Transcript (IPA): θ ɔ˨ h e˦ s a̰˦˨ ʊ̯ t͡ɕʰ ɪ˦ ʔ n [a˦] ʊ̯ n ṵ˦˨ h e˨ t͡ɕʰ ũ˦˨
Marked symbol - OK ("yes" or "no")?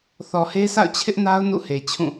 yes